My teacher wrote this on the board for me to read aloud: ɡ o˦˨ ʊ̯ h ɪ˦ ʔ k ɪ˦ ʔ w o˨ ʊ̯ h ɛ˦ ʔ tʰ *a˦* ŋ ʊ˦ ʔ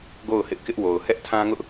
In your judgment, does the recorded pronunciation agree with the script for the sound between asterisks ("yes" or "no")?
no